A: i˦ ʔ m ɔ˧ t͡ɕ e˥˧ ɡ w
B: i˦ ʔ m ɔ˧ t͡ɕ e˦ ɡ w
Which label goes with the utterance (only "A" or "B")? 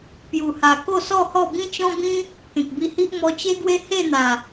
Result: B